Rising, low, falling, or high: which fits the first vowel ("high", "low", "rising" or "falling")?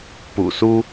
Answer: low